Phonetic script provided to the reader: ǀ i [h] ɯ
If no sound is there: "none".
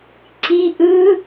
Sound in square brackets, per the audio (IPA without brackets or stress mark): ʔ